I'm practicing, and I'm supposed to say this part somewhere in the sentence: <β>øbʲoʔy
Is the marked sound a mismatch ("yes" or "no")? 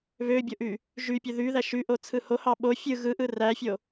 no